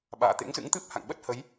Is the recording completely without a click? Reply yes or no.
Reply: yes